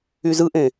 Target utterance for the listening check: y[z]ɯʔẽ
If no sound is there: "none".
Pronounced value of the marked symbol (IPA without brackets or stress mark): z